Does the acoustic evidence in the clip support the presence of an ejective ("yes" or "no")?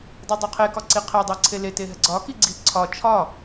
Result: no